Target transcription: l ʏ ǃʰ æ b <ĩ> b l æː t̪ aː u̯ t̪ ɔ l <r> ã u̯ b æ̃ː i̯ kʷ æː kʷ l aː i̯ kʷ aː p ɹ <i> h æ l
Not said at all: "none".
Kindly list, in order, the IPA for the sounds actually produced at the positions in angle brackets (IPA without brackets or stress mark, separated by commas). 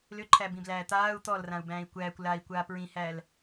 ĩ, r, ĩ